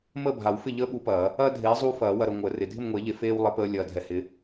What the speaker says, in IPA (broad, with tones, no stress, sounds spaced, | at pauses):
m əː˥˨ bʱ a˨˩˦ w f ɪ˥˨ ʎ əː˦ ɓ u˨˦ p ɐː˨˩˦ | ɐː˦ dʱ eː˨˦ zˤ uː˦ f ɐː˨˩˦ w ɐ˨ ɾ ə˨ ŋʷ əː˨˩˦ r ɪ˨ dʱ ɪ˥˨ m ŋʷ e˨˩˦ ʎ e˨ f eː˦ w lˠ e˨˦ p əː˨˦ lʲ ɐː˨ dʱ ɛ˨ h ɪ˨˦